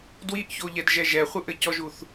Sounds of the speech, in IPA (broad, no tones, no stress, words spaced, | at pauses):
dwiʔçoʎɛd ʒɛʒɛχʷɨʔɘ cɔʒuθ